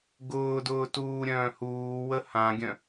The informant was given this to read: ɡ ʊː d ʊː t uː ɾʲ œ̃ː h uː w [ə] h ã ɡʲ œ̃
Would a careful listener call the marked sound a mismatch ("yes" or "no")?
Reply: no